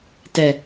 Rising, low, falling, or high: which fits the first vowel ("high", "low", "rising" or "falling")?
low